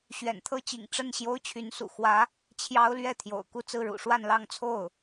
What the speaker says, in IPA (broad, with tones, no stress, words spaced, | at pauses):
ɕɥɛ̰˨˩nt̪ʰɤ˥t͡ɕḭ˨˩ŋ ʈ͡ʂə˥˩n ɕjo˥ʊ̯t͡ɕʰy˧˥nsṵ˨˩ xwä˧˥ | t͡ɕʰjɑ˥ʊ̯ lɥɛ˥˩t̪ʰjo̰˨˩ʊ̯ ku˥˧t͡sɹ̩˥˩ɻṵ˨˩ ʂwa˥˧n lɑ˥˧ŋt͡sʰo˥˩ʊ̯